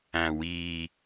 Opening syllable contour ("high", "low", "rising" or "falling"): low